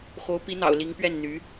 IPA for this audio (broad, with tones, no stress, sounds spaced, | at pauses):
x o˧˥ ʊ̯ p i˧˥ n̪ ɑ̰˨˩ ʊ̯ l i˧˥ ŋ p ɥ ɛ˥˩ n n̪ y˧˥